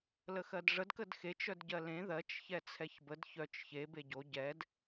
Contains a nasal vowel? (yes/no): yes